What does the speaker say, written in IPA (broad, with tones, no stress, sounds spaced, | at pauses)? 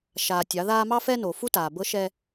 ʃ aː˨ tʲ ɑ˨˦ ð aː˦ m ɑ˦ f ɛ˦ n o˨ f u˦ t aː˨ b ɤ˦ ʃ ɛ˦